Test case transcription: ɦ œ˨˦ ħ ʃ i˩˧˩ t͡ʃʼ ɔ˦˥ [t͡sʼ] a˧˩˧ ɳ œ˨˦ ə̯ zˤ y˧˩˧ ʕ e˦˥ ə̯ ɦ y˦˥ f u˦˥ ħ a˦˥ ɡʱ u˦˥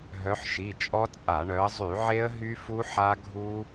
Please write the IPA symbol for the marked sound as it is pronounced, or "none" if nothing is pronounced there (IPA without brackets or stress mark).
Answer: t͡sʼ